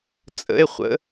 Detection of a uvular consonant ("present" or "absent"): present